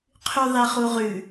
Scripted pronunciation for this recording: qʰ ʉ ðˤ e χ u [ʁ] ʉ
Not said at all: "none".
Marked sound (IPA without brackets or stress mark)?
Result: ʁ